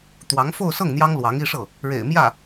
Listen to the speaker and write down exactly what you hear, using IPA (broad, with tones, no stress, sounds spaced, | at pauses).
t̪ w ɑ˧˥ ŋ f o˥˧ ʊ̯ s ɤ˥˩ ŋ n̪ j ɑ˥ ŋ l w ɑ˧˥ ŋ i˥˧ ʂ ɤ˥˩ | ɻ ḛ˨˩ ɪ̯ m j ä˥˩